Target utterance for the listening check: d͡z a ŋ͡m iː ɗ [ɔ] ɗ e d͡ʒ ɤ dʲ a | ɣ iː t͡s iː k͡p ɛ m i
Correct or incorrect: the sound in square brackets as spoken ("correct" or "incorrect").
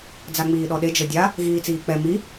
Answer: correct